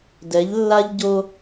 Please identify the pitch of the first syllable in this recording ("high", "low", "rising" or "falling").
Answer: rising